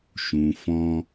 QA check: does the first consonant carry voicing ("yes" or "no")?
no